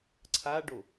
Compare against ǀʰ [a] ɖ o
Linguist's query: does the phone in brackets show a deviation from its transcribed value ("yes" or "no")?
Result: no